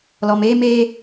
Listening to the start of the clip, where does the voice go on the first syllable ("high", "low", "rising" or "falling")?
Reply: low